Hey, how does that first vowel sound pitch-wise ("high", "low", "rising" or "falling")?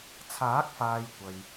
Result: rising